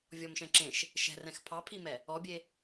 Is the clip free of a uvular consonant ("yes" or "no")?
yes